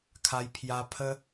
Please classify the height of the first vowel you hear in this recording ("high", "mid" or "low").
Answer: low